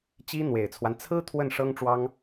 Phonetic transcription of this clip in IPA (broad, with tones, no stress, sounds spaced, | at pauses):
t͡ɕ i˥ n̪ w e˨˩ ɪ̯ t͡sʰ w a˦ n t͡sʰ ɹ̩˥ t̪ʰ w ə˥˩ n ʂ ɤ˥ ŋ ʈ͡ʂ w ɑ˥ ŋ